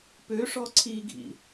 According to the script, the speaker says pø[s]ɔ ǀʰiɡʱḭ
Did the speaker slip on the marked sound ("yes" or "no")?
yes